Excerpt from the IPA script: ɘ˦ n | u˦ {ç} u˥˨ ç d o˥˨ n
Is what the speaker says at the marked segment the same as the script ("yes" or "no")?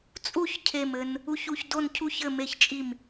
yes